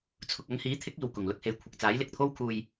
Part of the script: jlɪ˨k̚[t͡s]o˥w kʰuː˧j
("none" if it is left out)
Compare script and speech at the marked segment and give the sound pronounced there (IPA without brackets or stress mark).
t̪ʰ